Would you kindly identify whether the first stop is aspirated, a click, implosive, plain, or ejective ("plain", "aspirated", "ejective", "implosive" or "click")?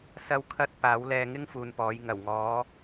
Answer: aspirated